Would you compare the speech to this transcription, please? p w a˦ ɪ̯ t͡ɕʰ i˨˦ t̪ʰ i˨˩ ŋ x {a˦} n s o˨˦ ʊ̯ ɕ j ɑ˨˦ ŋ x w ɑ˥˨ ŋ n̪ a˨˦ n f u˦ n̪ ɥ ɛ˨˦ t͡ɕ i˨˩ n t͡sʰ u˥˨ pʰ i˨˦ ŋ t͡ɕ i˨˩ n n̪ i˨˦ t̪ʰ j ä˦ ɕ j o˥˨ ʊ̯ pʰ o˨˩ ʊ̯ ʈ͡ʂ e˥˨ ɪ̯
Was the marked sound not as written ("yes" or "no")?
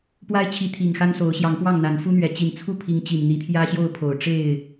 no